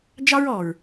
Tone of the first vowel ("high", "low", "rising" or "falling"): high